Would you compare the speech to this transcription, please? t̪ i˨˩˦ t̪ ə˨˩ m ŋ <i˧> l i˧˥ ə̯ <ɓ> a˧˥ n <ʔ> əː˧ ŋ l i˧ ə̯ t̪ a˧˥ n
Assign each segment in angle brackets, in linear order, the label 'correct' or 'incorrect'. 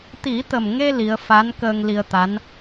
incorrect: e˧, incorrect: f, incorrect: k

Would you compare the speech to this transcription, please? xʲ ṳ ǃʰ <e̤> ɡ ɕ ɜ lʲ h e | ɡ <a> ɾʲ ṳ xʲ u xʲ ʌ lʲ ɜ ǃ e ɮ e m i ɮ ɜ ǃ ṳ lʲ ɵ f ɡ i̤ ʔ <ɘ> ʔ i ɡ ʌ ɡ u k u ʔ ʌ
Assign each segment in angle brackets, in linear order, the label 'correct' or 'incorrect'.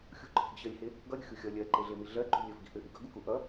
correct, incorrect: ʌ, correct

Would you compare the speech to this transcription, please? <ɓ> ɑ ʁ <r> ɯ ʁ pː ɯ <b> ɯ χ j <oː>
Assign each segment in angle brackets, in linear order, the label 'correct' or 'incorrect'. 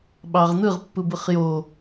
correct, incorrect: n̪, correct, incorrect: o

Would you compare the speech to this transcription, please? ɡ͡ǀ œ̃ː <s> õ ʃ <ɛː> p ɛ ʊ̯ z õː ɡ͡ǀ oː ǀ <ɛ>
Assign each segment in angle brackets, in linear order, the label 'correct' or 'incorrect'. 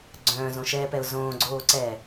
incorrect: z, correct, incorrect: ɛː

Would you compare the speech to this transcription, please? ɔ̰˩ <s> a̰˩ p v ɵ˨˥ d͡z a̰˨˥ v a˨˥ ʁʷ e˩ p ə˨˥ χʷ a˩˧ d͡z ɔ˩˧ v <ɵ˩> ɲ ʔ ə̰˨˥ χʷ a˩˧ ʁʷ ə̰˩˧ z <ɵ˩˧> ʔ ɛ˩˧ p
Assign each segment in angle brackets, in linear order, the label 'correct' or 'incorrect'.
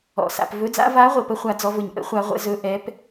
correct, correct, correct

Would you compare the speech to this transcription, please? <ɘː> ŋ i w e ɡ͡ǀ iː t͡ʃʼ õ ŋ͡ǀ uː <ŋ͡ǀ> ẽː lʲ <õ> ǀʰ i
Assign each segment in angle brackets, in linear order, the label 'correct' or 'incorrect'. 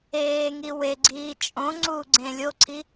incorrect: eː, incorrect: ɡ͡ǀ, incorrect: o

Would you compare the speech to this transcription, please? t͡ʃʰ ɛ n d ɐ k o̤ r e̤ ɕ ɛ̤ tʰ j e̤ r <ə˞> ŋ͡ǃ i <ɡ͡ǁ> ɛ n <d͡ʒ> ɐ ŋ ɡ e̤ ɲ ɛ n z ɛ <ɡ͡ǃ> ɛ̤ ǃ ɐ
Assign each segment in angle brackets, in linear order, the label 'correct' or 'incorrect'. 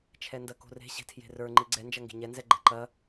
correct, incorrect: ɡ͡ǀ, correct, correct

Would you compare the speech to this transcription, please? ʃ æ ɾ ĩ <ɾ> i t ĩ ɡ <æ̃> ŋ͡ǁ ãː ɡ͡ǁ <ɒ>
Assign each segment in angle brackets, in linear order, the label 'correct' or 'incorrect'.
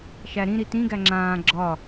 correct, incorrect: æ, correct

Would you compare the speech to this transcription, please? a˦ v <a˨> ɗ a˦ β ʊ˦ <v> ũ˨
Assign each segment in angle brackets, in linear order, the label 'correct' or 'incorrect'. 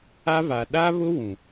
correct, incorrect: w

